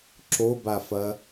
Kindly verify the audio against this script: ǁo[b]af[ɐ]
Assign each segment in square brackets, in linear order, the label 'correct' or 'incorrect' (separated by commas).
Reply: correct, correct